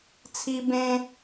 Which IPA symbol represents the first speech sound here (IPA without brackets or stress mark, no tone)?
t͡sʰ